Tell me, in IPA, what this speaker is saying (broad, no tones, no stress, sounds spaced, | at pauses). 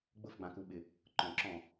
ɡ͡b ʊ f ɡ͡b ã k u ɓ ɪ | ǃ ɔ̃ ǁ ɔ̃